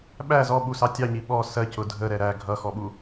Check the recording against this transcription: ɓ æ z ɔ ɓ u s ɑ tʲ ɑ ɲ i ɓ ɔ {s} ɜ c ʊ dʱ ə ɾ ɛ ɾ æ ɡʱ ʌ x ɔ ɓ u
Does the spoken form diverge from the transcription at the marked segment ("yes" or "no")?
no